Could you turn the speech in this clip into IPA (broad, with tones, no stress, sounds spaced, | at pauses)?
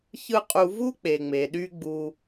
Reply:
ç ɯ˦ qʼ u˧ v u˦ k͡p e˨ ŋ͡m e˨ ɗ y˧ ɡ͡b u˦